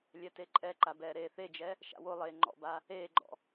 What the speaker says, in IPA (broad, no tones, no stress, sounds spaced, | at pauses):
lʲ ɛ t e ǃʼ ɛ ǃ a b ɛː ɾ eː θ e d͡ʒ ɛ | ʃ a̰ w o lˠ eː ŋ͡ǃ ɔ̰ b a | eː ɡ͡ǃ ɔ̰